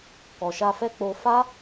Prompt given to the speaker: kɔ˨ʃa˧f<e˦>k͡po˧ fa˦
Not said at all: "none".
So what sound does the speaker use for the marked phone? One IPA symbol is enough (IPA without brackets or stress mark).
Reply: ɛ˦